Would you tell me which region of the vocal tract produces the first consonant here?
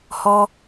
throat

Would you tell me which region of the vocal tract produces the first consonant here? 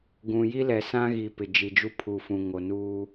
velum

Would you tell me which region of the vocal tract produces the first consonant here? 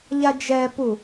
palate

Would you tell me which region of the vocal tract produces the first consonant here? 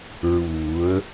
tongue tip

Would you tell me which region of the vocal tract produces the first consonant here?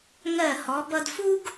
velum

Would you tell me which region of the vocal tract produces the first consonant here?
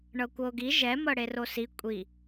retroflex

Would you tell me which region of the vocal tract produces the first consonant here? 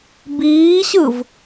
lips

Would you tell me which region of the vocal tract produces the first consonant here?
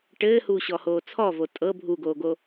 retroflex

